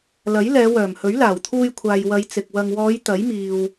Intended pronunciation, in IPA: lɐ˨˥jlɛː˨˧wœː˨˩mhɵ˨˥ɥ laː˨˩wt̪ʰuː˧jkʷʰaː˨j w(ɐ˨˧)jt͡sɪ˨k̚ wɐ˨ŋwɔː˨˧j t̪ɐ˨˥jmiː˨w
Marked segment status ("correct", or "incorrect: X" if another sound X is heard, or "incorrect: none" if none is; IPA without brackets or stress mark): correct